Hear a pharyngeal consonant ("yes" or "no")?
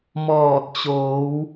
no